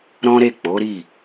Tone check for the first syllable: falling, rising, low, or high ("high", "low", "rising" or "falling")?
high